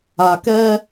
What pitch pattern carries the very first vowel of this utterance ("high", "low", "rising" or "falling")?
low